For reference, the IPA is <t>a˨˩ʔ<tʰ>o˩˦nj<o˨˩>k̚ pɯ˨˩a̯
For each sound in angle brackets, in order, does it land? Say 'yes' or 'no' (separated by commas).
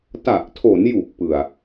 yes, yes, no